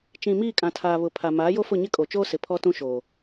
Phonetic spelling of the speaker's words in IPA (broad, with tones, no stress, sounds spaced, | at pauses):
t͡ʃ ĩ˨ m iː˦˨ kʼ ã˨ tʰ aː˨ β ʊ˨ pʰ a˨ m aː˨˦ j o˦ f ʊ˦˨ ɲ ɪ˦ kʼ o˨ t͡ʃ oː˦ s ɪ˨ pʰ ɔ˦ t ũ˦ ʃ oː˨